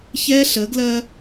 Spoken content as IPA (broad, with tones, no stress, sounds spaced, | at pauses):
ç ɛ˦ ɬ ə˨˦ ɡ l ɜ˦